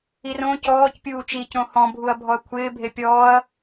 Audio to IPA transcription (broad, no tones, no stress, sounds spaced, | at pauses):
i r õ c ɔː c pʲ uː t͡ʃ i c õ h ɔ̃ bʱ u ɐ̯ bʱ ɔ ɐ̯ kʷʰ ɪː bʱ e pʲ ɔː ɐ̯